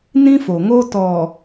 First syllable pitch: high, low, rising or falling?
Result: high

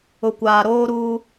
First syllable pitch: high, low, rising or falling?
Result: low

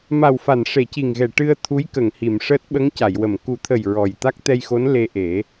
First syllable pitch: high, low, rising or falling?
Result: low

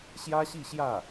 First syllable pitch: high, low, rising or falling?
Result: high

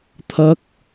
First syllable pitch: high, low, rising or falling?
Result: rising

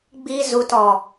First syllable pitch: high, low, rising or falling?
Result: high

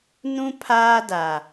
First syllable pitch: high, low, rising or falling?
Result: high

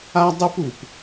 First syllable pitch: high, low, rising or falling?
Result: high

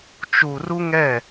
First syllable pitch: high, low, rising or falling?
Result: low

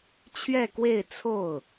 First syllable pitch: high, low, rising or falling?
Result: falling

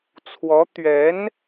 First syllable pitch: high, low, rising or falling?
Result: rising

